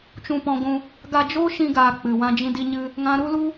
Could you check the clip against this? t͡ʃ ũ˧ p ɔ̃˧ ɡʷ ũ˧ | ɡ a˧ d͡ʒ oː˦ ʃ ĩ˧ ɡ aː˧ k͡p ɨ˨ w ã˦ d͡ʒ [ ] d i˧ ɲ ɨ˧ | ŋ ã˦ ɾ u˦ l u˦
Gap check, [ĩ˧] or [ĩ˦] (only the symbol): ĩ˧